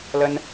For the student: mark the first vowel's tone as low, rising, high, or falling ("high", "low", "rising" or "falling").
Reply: high